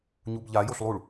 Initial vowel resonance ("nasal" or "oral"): oral